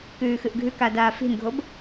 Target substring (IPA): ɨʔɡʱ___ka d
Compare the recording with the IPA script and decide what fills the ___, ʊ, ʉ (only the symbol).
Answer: ʉ